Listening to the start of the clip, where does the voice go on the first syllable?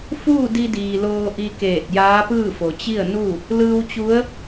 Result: falling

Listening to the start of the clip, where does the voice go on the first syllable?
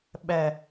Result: low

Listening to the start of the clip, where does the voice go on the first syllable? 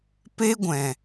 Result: high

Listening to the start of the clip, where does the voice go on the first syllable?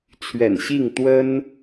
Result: low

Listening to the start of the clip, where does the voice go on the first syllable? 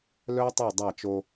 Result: high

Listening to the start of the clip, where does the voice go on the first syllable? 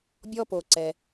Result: high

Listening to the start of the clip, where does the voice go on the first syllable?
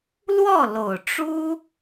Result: falling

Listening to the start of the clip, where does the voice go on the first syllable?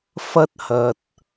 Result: high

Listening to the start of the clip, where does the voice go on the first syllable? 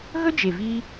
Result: high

